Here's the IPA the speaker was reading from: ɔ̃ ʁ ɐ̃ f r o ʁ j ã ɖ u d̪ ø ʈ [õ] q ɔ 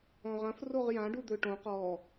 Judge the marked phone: correct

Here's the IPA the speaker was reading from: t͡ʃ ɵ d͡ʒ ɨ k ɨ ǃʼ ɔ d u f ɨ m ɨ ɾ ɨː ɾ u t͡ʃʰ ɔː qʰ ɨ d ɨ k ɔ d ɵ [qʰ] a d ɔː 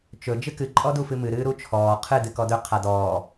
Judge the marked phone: correct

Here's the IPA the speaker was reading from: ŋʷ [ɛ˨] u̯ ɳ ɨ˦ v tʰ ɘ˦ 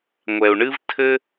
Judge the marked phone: correct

